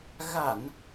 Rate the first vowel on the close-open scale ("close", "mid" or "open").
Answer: open